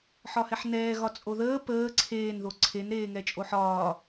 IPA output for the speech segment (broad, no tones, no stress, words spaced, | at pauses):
ħɒhɛħnɛːɣɒ t͡sʼoðəː pəː ǀʰeːnðo ǀʰenɾeːŋɛ t͡ʃʼoħɒː